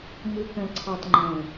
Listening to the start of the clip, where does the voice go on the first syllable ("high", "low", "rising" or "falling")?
low